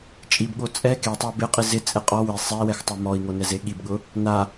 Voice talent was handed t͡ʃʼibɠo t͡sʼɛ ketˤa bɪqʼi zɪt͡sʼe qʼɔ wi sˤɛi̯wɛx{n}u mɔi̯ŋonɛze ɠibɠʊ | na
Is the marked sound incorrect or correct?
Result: incorrect